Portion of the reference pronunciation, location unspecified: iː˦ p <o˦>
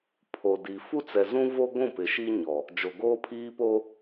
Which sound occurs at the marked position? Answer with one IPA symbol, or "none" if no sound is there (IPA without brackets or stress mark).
o˦